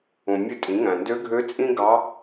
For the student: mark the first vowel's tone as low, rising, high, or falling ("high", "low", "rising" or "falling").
low